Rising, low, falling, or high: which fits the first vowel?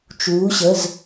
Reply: rising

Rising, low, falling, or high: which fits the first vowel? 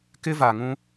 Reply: high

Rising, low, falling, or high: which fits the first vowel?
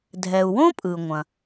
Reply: low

